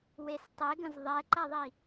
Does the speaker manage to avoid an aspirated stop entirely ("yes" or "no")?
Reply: yes